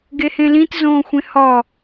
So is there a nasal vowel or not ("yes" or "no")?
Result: yes